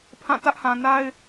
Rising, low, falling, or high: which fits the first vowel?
falling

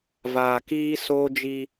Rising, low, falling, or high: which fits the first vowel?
low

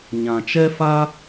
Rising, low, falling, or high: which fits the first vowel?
low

